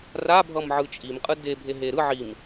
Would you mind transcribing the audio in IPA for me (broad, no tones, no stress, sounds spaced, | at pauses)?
r a bʱ ʌ m ʕ ɯ t͡ʃʼ i m qʼ ɯ d e bʱ e ɦ e ɾ ɯ ʕ i m